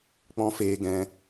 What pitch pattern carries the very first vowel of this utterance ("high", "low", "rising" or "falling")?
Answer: high